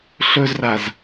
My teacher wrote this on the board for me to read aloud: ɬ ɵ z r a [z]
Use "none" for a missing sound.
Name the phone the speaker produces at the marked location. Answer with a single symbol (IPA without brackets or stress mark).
z